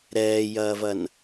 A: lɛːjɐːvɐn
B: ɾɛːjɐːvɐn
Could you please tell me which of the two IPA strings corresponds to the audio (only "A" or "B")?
B